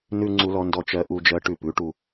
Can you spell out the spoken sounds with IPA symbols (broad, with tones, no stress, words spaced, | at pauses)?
nʉ˧ ŋ͡ǀu˧lɔ˧ndɔ˧ t͡ʃɜ˧ʔu˧d͡ʒɜ˧ ʈʉ˧pʉ˨˥ʈu˧